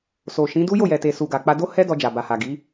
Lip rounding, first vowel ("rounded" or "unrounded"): rounded